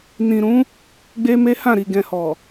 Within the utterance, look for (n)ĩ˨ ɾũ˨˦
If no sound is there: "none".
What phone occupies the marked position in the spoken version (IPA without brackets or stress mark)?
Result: n